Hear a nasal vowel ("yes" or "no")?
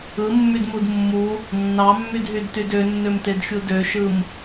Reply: no